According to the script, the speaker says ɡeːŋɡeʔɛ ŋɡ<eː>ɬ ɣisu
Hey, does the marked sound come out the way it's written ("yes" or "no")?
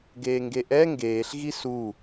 yes